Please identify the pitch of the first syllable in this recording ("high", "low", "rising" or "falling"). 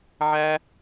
high